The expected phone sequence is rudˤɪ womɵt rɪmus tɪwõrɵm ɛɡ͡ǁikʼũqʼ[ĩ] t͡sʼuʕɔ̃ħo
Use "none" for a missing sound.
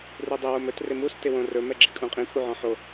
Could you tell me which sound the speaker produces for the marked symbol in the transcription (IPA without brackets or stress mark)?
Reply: ĩ